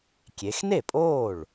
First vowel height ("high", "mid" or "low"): mid